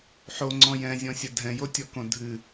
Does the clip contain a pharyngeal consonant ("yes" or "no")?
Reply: yes